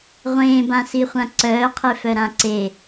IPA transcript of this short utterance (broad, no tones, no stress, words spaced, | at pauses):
ʁʷẽːbãsiχʷã ǀœːqʰefœɾã ǀe